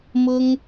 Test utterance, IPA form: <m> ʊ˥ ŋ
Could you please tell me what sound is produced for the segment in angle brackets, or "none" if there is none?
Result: m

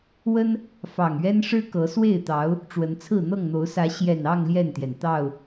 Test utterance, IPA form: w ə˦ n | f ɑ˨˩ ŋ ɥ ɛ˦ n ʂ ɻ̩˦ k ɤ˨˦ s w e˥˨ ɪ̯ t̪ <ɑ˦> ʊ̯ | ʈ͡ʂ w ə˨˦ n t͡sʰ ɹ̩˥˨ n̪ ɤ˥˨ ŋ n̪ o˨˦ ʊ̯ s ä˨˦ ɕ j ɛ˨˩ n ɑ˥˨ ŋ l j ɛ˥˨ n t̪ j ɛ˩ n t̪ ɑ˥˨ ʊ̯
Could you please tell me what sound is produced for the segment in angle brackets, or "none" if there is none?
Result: ɑ˨˦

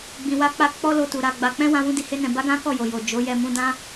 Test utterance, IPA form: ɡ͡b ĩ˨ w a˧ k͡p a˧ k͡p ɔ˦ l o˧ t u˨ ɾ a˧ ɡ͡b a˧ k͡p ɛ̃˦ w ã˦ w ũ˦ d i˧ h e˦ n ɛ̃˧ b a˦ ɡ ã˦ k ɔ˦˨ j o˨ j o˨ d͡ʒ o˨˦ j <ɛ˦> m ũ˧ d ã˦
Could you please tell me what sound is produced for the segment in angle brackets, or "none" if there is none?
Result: ɛ˧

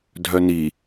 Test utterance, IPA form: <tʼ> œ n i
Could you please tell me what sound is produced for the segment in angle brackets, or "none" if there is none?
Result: dʱ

